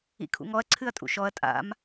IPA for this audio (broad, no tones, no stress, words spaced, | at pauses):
ḭkʰṵŋɔɐ̯ ǀʰɨɐ̯tʼṵʃɔɐ̯ tʼa̰m